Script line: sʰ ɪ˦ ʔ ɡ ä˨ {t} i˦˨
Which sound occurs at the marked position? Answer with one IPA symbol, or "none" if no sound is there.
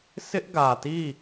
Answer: t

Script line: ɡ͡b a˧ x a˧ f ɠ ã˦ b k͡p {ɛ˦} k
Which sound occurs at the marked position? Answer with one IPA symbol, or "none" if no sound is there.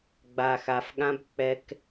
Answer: ɛ˦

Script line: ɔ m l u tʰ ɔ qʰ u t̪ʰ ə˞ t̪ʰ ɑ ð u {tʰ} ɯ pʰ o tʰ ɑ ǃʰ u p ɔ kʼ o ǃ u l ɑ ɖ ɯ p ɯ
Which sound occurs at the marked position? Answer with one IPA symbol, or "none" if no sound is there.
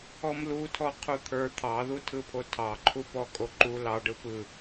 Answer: tʰ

